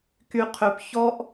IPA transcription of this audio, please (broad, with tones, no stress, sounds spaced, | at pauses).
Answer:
k y˧ qʰ ø˧ p ç ɔ˧ ʔ